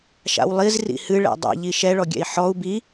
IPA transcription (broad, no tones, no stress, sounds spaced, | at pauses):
ʃ a̰ w lˠ i z r ḭ h ɨ ɭ ɛ̰ dˤ ɛ̰ ʎ i ʃ ɛ ɭ ɔ ɡʲ ɛ̰ i̯ ħ ɔ u̯ b i